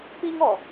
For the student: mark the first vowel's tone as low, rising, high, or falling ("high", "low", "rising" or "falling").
high